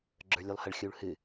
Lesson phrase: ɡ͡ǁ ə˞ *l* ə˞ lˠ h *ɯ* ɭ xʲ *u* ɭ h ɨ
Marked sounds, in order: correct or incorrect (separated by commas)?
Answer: incorrect, incorrect, correct